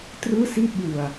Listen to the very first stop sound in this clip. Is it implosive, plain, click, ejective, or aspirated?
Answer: plain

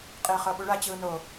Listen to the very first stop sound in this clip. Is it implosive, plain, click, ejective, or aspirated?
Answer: ejective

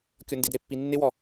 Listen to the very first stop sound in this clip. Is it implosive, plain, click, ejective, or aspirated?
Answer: plain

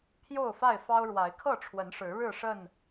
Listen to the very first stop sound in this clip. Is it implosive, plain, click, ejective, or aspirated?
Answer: aspirated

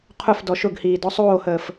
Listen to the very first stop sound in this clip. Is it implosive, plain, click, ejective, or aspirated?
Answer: aspirated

